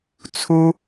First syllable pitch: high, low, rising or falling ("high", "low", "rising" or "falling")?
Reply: high